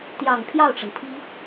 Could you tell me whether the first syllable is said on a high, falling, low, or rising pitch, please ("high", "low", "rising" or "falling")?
low